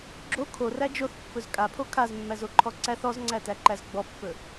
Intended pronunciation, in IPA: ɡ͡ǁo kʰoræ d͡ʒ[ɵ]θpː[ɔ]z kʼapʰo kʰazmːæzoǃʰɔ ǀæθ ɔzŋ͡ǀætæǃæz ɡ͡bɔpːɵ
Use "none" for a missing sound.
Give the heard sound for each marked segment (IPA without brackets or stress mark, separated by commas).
o, ɵ